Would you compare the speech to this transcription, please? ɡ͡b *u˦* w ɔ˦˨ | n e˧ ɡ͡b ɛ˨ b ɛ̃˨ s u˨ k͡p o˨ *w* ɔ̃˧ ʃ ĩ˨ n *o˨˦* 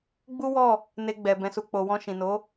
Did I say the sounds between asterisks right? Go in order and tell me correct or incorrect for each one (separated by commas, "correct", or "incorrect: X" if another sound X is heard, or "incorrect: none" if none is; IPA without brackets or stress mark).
correct, correct, correct